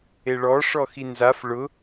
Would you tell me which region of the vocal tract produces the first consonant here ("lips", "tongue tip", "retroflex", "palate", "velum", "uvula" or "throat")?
retroflex